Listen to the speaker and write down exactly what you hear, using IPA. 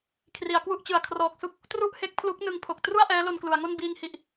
kʰ r i˩˦ a̯ k w u˥˩ ʔ t͡ɕ ɯ˨˩ a̯ kʰ r ɔː˨˩ k̚ s u˥˩ k̚ | t r u˥˩ ʔ h e˦˥ k̚ pʰ l u˦˥ k̚ n ɯ˧ ŋ pʰ o˨˩ k̚ t r u˥˩ a̯ ʔ ɛː˦˥ l o˧ n k l u˩˦ a̯ ŋ o˥˩ n b iː˧ ŋ h i˨˩ ʔ

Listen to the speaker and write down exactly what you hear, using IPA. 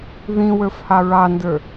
ð ĩ w ə˞ f h ɑ ɹ ɑ n d ə˞

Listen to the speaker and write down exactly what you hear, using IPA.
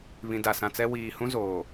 β ĩ˨ d a˨ s ã˨ t͡s ɛ˦ w iː˨ h ũ˦ z oː˨

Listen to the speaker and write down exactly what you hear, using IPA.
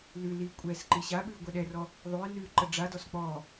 l ʉ l i kʷʼ ɛ s ǃ i ɕ a ɓ ʉ ʊ̯ ɡʷ ɛ ɗ ɛ r ɔ | ðˤ ʉ ɪ̯ n ʉ ǃ ə ɖ͡ʐ a d ɔ s k͡p ɔ

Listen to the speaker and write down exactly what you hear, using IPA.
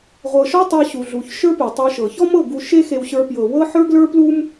ʁʷ ɤ˧ ʃ ɔ˦ tˤ ɤ˧ ɕ u˨ ɮ u˨ ç ʃ ə˞˦ p e˨ tˤ ə˞˧ ʃ ɤ˨ ç ɔ˦ m ɤ˦˨ ɡ u˧ ʃ e˦ x e˧ w ɕ ə˞˧ p j ɤ˨ w ɤ˦ ħ ə˞˦ ɡ l ə˞˦ p l u˦ m

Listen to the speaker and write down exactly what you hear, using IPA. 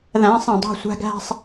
ð æ̃˨˦ sˤ ẽ˨ dˤ o̤˦˨ sʷ æ̤˦ ɡ æ̤˦ sˤ

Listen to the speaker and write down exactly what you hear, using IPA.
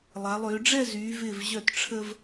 lˠ a˩˧ lˠ ʏː˩˧ ɖ͡ʐ ɛ˥˧ z yː˩˧ v ɪː˧˩ v ʑ œ˧˩ t ʈ͡ʂʰ ə˧ v

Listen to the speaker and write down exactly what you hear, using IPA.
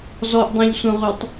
z ɔ ʔ dˤ ẽ ʎ sʷ ẽ ʁʷ ɛ tˤ

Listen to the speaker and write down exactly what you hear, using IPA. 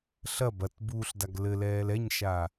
ɬ ɐ b ɐ t b uː ɬ d a ɡ l ɘ l ɛː l ɛ ɲ ʃ a

